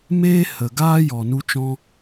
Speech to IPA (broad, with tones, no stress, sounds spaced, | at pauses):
m eː˦ h ə˨ ɡ aː˦ j ɔ˨ n u˧ t͡ʃ ɔ̃˧